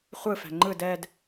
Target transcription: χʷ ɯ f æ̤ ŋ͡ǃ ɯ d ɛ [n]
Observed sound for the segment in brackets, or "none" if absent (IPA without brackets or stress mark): d